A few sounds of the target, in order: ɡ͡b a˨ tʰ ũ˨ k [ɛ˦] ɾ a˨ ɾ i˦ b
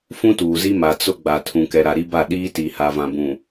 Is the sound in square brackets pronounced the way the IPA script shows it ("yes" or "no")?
no